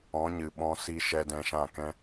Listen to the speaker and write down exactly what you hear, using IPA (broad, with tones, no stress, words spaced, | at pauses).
ɔ̃˨˦ɲɨ˨ ɓɔ̃˧si˧ ʃɛ˧dɛ̃˧ʃã˦˨kɛ̃˦